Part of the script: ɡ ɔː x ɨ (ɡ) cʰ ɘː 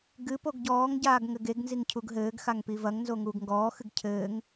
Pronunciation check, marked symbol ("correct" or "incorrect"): correct